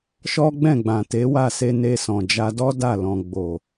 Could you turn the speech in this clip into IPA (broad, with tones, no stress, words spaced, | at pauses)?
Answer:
ʃɔ˦ɡ͡bɛ̃˦˨ɡ͡bã˨ te˨˦wa˦˨ se˧ ne˧sɔ̃˨d͡ʒa˧ dɔ˦da˦˨ lɔ̃˨ ɡ͡bo˨